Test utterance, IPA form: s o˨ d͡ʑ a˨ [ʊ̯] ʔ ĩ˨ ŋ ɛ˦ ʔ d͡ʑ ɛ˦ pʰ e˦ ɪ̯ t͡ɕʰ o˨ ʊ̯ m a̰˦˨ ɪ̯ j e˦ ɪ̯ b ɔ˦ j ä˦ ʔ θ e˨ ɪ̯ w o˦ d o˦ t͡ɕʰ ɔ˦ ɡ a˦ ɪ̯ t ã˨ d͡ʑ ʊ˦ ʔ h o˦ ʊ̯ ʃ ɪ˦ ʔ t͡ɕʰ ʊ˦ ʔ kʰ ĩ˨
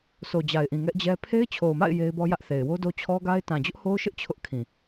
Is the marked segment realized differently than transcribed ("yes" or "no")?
yes